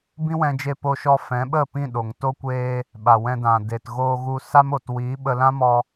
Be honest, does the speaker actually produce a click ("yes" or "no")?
no